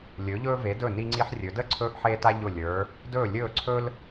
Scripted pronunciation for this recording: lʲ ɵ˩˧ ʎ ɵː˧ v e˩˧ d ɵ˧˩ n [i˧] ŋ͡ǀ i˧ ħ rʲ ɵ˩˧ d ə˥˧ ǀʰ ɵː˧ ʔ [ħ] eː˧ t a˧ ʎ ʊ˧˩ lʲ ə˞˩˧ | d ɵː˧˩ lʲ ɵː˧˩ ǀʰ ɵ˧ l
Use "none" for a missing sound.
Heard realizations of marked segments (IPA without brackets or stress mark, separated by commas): i˧, ħ